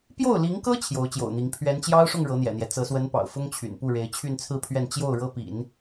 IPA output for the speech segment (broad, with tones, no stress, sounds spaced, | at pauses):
p j o˥˩ ʊ̯ l i˧˥ ŋ k ɤ˥ t͡ɕʰ j o˧˥ ʊ̯ t͡ɕ j o̰˨˩ ʊ̯ n̪ i˧˥ ŋ pʰ ɥ ɛ˧˥ n t͡ɕ j ɑ˥ ʊ̯ ʂ ʊ˥˩ ŋ ɻ ɤ˧˥ n̪ j ɛ̰˨˩ n̪ j ɛ˦ t͡s ɤ˧˥ s w ə˧˥ n p ɑ̰˨˩ ʊ̯ f ʊ˥ ŋ t͡ɕʰ y̰˨˩ n p u˥˩ ɻ e˧˥ ɪ̯ t͡ɕʰ y˥˧ n t͡sʰ ɹ̩˥˧ pʰ ɥ ɛ˥˧ n t͡ɕ j o˥˩ ʊ̯ ɻ ɤ˥ p ḭ˨˩˦ n